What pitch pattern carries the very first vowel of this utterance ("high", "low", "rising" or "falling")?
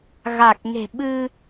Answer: low